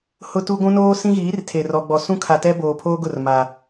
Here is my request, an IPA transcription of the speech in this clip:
hʊ˦tu˦ ɡʷũ˦noː˦sĩ˦ɣiː˨˦r tʰe˨rɔ˨ɡ͡bɔ˨ sũ˦kʰa˨ tɛ˦ boː˨pʰoː˦ɡʊ˦˨r ma˨

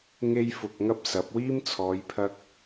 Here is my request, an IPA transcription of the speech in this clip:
ŋe˥jfʊ˧k̚ŋɐ˥p̚sɐ˨˥p̚ wiː˥mt͡sʰɔː˨˧jpʰɐ˧k̚

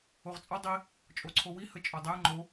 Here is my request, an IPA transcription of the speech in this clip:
oʁt͡sʼɒ dˤi | t͡ʃʼoǀʰowi hət͡ʃʼodˤe ŋ͡ǃo

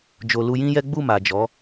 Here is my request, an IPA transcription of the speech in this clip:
d͡ʒo˨lu˧jĩ˦jɛ˦ ɡ͡bu˦˨ma˨d͡ʒɔ˨˦

